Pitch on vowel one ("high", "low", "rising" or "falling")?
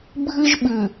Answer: high